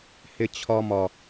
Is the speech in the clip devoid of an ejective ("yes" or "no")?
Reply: yes